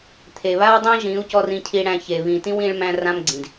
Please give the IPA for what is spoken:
t̪ʰ e˨ β a˦ w dˤ ẽ˦ ʒ ĩ˨˦ u̯ c ɔ˧ r ĩ˧ cʰ i˧ ɽ æ̃˧ ç e˨ β ĩ˨ t ĩ˦ w ĩ˧ ɭ m æ̃˧ r ã˦ m ɡ͡ǀ ĩ˨ d

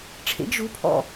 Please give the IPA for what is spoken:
ʈ͡ʂʰ ḛ ɡ ʒ u pʰ ɔ̰

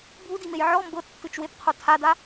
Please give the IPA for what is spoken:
bʱ u d i m e j ʕ ɔ m b ɤ tː ɯ t͡ʃ w e p qʰ o tʰ a d a

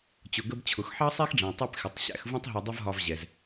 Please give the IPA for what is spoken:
t͡ɕ ʊ˩ ɡ ə˧ b t͡ɕʰ ʊ˩ x ħ ɑ˥ sˤ ɛ˥ x ɖ͡ʐ ɛ̃˩ tˤ ɛ˧ p x ɪ˩ tˤ ɕ æ̰˧ x v ũ˥ tˤ ɦ u˧ dˤ ɪ˥ v ɦ ɒ˧ v ʑ ɛ˩ z

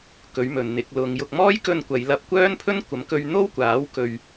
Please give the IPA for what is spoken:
k ɵ˨˥ ɥ m ɵ˨ n n̪ ɪ˨˥ k̚ l ʊ˨˧ ŋ j ʊ˧ k̚ m ɔː˥ j k ɵ˧ n kʷ ɐ˨˧ j l ɐ˧ p̚ kʷ œː˥ n pʰ ɵ˥ n kʷ ɐ˨˥ m k ɵ˧ ɥ n̪ o˥ w kʷ aː˨˥ w k ɵ˧ ɥ

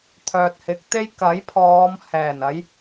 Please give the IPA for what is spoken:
t̪ʰ œː˨ t̚ h ɪ˨˥ k̚ t̪ e˥ j k ɐ˨˥ j pʰ ɔː˨˧ m h ɛː˨˩ n ɐ˨˧ j

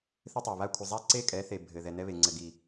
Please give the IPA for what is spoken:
θ ɘ˦ tˤ e˨ β a˦ kʷʰ ɘ˨ zˤ a˦ ǀ e˦ kʼ ɛ˨˦ θ e˨ bʱ ɘ˨ ð ɛ˨ n ɛ˦ β e˨ ŋ͡ǀ ɘ˨ ɡ i˨

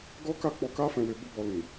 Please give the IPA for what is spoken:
ɡ ɔ˦ k a˦˨ k͡p ɔ˧ k a˦ f ɛ̃˧ w e˧ b o˦ b ɔ˧ l ĩ˨

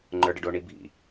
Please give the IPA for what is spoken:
ŋ͡ǃ ə˞ ɖ ə ɖ o ɳ i bʱ ḭ

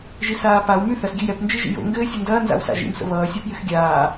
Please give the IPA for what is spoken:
ʒ i s aː p a w m y θ ɐ s ɡʲ ɘ j ɛ p n d͡ʒ i ʒ ḭ j o̰ ŋ ɡ ɘː sʲ ɛ n d ɐː n z a̰ w s a̰ ʒ ḭ m s ə̰ β ʌː sʲ a p j y x ɡʲ aː

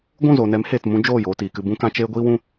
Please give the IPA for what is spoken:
ɡʷ ũ˦˨ z oː˨ n ɛ˨˦ m h eː˨ t m ũ˦ d͡ʒ oː˦˨ j oː˧ t iː˨ k ɨ˧ b ũ˦ k ã˦ t͡ʃ eː˦ ɡʷ iː˦ w ũ˦

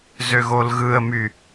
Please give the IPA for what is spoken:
z ø ɣ o l ɣ ɯ ə̯ m y

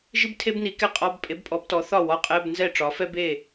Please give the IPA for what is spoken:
ʒ i˥ b tʰ e˥ b n i˩˥ k ɛ˥˩ qʼ ɒ˧˥˧ b pʼ e˩˥ b pʼ ɔ˩˥ b t ɔ˩˥ θ ɒ˥˩ w ɒ˧˥˧ qʼ ɛ˧˥˧ b n z ɛ˥˩ ʈ͡ʂ ɒ˩˥ f ɛ˥ b e˥˩

